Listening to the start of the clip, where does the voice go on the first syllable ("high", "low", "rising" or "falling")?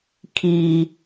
low